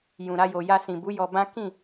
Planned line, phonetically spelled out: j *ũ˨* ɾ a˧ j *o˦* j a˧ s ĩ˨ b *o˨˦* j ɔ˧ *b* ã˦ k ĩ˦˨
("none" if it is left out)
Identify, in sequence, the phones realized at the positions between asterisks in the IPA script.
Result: ũ˨, o˨, u˨˦, b

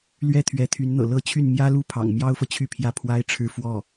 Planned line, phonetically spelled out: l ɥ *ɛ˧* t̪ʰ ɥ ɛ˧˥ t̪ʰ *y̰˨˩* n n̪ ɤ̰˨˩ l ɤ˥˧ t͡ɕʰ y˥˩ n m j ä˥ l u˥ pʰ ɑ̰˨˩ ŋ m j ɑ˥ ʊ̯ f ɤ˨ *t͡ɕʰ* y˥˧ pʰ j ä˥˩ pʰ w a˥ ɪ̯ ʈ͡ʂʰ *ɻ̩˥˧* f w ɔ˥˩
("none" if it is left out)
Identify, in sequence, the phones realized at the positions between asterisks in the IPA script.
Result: ɛ˥˩, y˧˥, t͡ɕʰ, ɻ̩˥˧

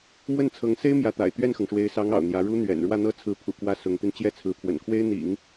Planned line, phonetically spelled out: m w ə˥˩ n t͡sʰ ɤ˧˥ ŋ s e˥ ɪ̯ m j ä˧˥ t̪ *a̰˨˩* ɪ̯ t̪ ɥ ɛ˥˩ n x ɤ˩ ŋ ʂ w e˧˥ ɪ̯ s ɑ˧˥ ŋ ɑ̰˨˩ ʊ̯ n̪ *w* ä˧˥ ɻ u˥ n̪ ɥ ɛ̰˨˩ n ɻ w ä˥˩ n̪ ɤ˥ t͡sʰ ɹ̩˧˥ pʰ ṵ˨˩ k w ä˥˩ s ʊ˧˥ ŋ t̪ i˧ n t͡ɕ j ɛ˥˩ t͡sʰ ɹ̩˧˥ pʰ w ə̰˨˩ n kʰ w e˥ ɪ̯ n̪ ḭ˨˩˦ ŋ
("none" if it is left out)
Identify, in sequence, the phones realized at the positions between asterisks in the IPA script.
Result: a̰˨˩, j

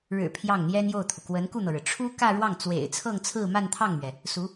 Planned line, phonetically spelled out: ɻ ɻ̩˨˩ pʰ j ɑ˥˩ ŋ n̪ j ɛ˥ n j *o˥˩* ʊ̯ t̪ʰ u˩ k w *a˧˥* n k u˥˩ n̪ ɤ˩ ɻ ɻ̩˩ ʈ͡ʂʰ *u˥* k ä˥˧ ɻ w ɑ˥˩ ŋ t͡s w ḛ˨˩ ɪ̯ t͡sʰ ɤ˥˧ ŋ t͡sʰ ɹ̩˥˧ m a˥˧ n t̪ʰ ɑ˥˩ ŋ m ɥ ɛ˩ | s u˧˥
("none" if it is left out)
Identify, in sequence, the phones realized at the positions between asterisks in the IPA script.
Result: o˥˩, ə˧˥, u˥

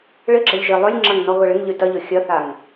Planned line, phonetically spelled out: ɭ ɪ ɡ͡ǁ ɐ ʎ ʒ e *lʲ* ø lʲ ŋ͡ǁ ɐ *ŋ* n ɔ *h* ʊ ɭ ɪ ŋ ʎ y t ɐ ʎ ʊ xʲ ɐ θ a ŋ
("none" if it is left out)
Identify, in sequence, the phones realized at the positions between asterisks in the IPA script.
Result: lˠ, ŋ, ɣ

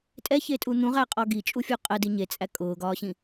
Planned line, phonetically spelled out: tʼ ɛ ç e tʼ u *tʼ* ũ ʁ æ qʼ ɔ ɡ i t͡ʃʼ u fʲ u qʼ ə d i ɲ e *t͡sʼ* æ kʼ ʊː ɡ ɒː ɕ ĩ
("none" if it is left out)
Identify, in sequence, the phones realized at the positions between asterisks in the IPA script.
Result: n̪, t͡sʼ

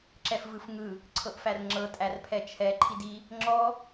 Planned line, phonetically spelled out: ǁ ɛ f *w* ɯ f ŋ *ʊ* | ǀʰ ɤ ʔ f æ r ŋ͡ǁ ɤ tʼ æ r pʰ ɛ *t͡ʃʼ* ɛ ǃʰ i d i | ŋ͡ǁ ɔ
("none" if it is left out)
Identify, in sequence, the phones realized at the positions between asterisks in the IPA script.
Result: v, ɯ, t͡ʃʰ

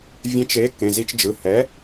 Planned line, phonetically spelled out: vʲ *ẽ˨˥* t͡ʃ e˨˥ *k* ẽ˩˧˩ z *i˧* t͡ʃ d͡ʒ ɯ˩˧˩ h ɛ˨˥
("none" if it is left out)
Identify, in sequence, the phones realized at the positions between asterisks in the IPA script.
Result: ẽ˨˥, k, i˧

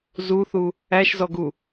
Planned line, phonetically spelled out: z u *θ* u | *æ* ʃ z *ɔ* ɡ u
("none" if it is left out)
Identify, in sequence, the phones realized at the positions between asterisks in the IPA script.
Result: θ, æ, ɔ

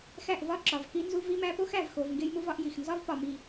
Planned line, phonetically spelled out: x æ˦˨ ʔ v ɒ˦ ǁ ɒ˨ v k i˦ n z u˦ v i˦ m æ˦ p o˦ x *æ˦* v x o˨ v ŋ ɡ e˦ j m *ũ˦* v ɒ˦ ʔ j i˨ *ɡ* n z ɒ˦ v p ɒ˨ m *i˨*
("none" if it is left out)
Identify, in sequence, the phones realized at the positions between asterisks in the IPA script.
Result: æ˨, u˦, x, i˨

